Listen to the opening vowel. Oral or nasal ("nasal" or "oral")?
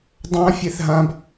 nasal